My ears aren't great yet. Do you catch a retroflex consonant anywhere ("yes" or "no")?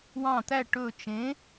yes